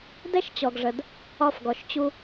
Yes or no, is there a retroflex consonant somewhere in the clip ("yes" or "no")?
yes